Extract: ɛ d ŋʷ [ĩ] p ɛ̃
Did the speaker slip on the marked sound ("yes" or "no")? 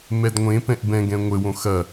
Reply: yes